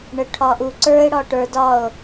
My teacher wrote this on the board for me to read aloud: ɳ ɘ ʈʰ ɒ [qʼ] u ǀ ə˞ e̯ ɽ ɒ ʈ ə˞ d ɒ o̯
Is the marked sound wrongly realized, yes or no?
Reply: yes